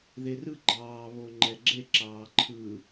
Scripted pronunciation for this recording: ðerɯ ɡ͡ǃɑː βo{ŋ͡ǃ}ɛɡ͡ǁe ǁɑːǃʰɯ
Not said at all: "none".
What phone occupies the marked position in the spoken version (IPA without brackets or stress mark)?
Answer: ŋ͡ǃ